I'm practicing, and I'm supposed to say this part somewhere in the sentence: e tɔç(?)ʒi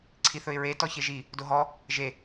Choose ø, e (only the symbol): e